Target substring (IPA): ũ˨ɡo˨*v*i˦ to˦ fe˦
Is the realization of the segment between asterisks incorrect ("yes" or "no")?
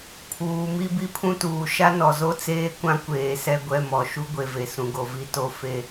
no